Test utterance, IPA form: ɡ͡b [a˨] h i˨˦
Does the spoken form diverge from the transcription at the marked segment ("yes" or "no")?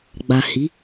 no